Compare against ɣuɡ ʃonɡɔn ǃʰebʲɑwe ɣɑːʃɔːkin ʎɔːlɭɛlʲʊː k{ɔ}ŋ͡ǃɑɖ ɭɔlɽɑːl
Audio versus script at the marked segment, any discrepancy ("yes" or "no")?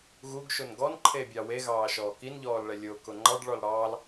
yes